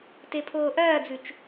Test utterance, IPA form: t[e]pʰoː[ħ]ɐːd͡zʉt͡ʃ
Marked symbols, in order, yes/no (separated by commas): yes, no